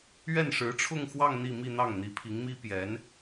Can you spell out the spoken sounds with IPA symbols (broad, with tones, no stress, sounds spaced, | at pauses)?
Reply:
ɥ ɛ˥˩ n ʂ ɻ̩˧˥ ʈ͡ʂʰ ʊ˥˧ ŋ x w ɑ˥˧ ŋ n̪ i˥˧ m i˥˧ n̪ ɑ˥˩ ŋ n̪ i˧˥ pʰ i˧˥ ŋ m i˥ p j ɛ˧˥ n